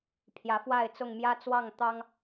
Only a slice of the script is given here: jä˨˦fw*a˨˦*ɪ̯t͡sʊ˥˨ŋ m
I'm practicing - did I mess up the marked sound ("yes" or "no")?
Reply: yes